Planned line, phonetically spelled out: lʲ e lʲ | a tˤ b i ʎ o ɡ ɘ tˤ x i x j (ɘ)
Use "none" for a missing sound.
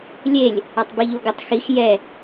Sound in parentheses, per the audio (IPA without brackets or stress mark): ɛ